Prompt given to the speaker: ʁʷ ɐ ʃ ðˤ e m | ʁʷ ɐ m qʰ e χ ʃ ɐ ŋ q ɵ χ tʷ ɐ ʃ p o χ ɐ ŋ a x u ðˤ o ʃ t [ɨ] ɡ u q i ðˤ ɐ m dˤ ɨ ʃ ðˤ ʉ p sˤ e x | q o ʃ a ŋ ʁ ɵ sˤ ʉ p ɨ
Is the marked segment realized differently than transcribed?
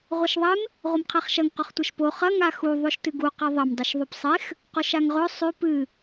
no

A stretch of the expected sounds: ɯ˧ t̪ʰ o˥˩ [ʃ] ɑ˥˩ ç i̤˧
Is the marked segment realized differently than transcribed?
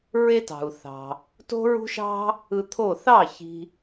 yes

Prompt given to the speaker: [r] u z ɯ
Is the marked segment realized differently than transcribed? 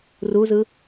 no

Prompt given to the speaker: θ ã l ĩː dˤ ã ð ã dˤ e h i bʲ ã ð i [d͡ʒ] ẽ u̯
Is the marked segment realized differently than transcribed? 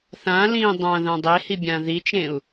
yes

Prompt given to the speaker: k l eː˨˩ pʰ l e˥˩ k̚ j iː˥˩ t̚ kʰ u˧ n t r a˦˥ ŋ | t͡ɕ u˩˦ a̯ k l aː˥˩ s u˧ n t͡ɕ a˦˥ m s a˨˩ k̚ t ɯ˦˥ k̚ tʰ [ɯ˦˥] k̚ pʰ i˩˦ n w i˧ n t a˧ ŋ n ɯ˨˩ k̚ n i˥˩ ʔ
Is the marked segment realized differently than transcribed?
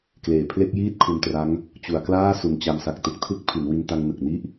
no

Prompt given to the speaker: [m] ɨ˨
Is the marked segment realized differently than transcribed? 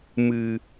no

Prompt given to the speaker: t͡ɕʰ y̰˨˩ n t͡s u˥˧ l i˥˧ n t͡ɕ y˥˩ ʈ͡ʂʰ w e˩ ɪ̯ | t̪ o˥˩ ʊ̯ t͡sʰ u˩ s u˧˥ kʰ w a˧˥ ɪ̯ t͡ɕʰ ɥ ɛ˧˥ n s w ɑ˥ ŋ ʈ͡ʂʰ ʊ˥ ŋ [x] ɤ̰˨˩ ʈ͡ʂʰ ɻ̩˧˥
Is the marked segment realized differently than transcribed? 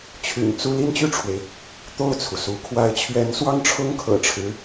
yes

